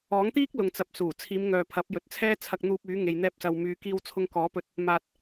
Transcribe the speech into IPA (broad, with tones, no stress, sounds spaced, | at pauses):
ɔː˨˥ ŋ t̪ iː˥ k̚ l ʊ˨ ŋ t͡s ɐ˨ p̚ s uː˨˩ t͡sʰ iː˨˧ m ŋ œː˨ pʰ ɐ˨˥ p̚ j ɵ˨˥ t̚ t͡sʰ ɛː˥ t͡sʰ ɐ˧ k̚ n̪ uː˧ p̚ yː˨˥ ŋ e˧ j n̪ ɛː˥ p̚ s ɐ˧ w m yː˨˧ k iː˧ w t͡sʰ ʊ˧ ŋ k ɔː˨˥ p ɵ˧ t̚ | m aː˧ t̚